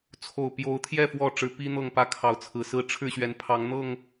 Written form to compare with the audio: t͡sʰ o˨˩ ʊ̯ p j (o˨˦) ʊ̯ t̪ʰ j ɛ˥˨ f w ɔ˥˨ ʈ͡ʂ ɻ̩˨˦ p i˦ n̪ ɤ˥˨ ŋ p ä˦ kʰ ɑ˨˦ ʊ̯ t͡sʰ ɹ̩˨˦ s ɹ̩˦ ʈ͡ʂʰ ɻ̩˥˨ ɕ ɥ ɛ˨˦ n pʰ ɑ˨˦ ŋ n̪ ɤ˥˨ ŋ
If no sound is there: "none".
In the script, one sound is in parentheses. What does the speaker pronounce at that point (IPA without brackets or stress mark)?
o˨˦